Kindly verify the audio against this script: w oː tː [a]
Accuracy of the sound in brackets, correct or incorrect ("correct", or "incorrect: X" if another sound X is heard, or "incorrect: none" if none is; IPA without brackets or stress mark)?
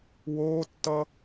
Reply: incorrect: ʌ